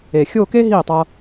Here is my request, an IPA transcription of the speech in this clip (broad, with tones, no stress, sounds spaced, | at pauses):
e˨˩ xʲ o˥˧ k e˥ ɦ i˥˩ tˤ ʌ˧